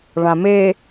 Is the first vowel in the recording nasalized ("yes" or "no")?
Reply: yes